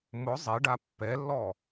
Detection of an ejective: absent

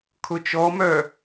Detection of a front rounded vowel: present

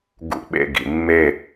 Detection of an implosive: present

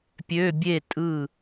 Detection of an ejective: present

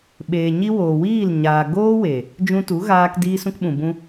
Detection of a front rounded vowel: absent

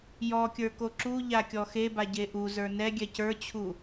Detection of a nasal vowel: absent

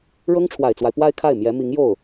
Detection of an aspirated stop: present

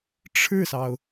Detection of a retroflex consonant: present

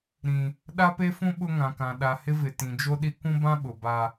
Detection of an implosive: present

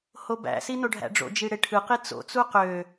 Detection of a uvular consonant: present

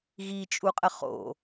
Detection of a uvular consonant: present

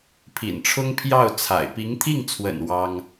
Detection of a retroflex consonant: present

